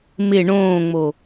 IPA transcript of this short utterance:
mɪ ɳõːŋ͡mo

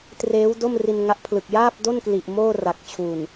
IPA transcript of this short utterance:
treː˦˥wdo˥˩m ri˧nŋa˦˥ʔpʰlɯ˨˩k̚ jaː˥˩p̚do˥˩n kli˨˩ʔmoː˥˩ra˨˩k̚t͡ɕʰu˨˩n

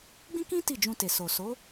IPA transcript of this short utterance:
ɡ͡bĩ˦kĩ˦ ti˦˨ d͡ʒũ˧te˨so˨ so˨˦

